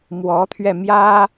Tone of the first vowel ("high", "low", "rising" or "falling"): rising